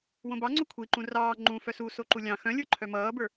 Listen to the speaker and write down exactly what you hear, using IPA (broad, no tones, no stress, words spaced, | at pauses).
wõbɑŋ͡ǀo kʷʰiǃũ rɑː ŋ͡ǃũ fœsuso ǃulʲɑ̃ xœ̃ lʲə˞ǃʰœmʌːbə˞